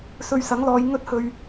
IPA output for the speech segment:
s ɵ˧ ɥ s ɐ˨˥ ŋ l ɔː˨˧ j ŋ ɵ˥ t̚ h ɵ˧ ɥ

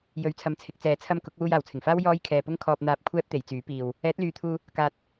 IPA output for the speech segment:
j ɵ˨˧ ɥ t͡sʰ ɐ˨˧ m t͡sʰ ɪ˨˥ k̚ t͡s ɛː˨ t͡sʰ ɐ˧ m k ʊ˨˥ k̚ w uː˧ j aː˨˩ w t͡sʰ ɪ˨˩ ŋ f aː˥ w j ɔː˥ j kʰ ɛː˧ p ʊ˥ ŋ kʰ ɔː˧ p̚ n̪ aː˧ p̚ kʷʰ ɛː˥ p̚ t̪ e˨˧ j t͡s yː˨˥ p iː˧ w | ɛː˨˥ t̚ l yː˨ t̪ʰ uː˧ | k aː˨ t̚

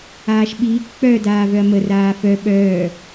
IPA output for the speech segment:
aː ʃ ɓ iː k k͡p œ d aː v œ ɐ̯ m ə r aː f œ ɓ œː

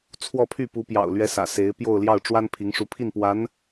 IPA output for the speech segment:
t͡sʰ w ɔ˥˧ pʰ y˥˩ p u˧˥ p j ɑ̰˨˩ ʊ̯ l ɥ ɛ˧˥ s ä̰˨˩ s e˧˥ ɪ̯ p j o˥˧ ʊ̯ l j ɑ˥˩ ʊ̯ ʈ͡ʂ w a˥ n pʰ i˧˥ ŋ ʂ u˧˥ pʰ i˥˩ n p w a˧˥ n

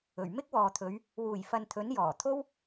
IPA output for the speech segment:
ɵ˨˩ ɥ m ɪ˥ k̚ w ɔː˨ t̪ʰ ɵ˨˧ ɥ | w uː˨˩ j f ɐ˨ n t̪ʰ ɵ˨˥ n j ɔː˨˩ t̪ʰ o˥ w

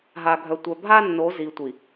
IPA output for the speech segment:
ɦ a˨ ɡʱ œ˨ tʷ œ˨ bʱ a˦ nː o˨˦ z i˨ tʷ i˨

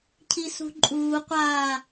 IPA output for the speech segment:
cʰ i s ṳ ǃʼ uː qʷ aː

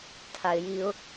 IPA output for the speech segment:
tʰ a ɪ̯ j i ʊ̯

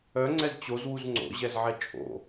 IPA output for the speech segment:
œ ŋ͡ǀ ɛ z t͡ɕ o z w u z ŋ͡ǀ o̰ ʑ ɛ z ʕ ɛ t͡ʃʼ o̰

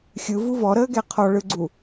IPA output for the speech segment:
xʲ ɯ v u v ɔ ɾ əː ɡ ɛ qʰ ɔ ɭ ɯ ɡ͡ǀ u

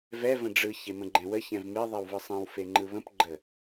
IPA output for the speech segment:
v ɛ v ə̃ ɖ͡ʐ ɯ ç e m ə̃ ɡ͡ǃ ɛ̃ w ə ç ɛ̃ v m e ðˤ ɛ w v ɯ sˤ ɛ̃ w f e ŋ͡ǃ ɯ β ə̃ p ɡ͡ǃ ə

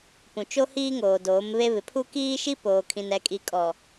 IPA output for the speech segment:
p ũ˨ t͡ʃ o˦ h iː˦ ŋ oː˨ d oː˨˦ m β e˦ β ɪ˨ pʰ u˦ k iː˦ ʃ i˦ p oː˨ kʰ ĩ˨ n ɛ˨ kʼ i˨ kʼ ɔ˨

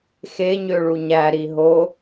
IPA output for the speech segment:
x e ɲ ø ɭ u ɲ æ ɾ i ɦ o

